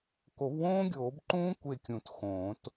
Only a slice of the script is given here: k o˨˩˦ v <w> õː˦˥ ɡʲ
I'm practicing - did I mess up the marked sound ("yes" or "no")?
no